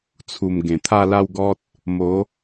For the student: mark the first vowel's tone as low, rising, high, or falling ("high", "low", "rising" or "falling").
low